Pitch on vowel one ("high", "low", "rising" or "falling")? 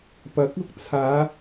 rising